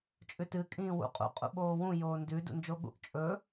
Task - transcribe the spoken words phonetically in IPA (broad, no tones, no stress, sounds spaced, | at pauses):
t͡ʃʼ ʉ t ɨ kʼ ĩː w ṵ qʼ ṵ qʼ ṵ ɓ oː w ũ j oː n d ʉ d ṵ n d͡ʒ o ɠ ṵ ʔ t͡ʃʼ ɵ